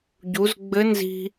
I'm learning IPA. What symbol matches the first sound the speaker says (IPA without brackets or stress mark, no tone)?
ɟ